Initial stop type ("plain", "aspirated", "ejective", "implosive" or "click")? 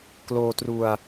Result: plain